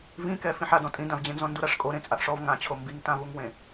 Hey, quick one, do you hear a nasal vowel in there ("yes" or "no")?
yes